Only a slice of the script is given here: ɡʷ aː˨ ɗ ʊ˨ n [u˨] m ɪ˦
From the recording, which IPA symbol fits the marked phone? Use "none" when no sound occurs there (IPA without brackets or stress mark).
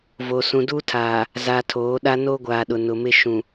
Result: ʊ˨